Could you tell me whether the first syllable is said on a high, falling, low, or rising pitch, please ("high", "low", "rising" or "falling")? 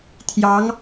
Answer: rising